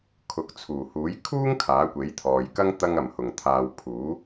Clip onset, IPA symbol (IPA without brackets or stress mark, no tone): kʰ